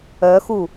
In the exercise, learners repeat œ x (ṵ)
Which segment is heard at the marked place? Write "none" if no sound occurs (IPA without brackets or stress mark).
u